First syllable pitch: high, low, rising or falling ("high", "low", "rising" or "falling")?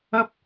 high